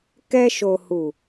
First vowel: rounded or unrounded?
unrounded